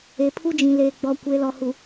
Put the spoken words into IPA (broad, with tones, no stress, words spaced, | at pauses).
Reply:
e˨pʰu˦d͡ʒĩ˨ leː˨ɡ͡bɔ˨ kʷe˨˦lɔ˨hu˨